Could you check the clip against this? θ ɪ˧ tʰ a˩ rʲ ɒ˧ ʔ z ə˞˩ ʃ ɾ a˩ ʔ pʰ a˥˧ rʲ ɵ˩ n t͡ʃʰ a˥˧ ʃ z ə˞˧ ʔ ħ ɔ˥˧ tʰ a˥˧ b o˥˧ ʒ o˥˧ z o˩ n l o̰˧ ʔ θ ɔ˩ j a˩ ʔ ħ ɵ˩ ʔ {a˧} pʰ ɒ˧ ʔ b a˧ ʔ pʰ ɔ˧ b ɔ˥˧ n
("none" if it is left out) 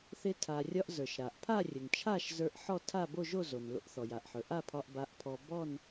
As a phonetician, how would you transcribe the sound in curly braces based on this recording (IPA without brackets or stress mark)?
a˥˧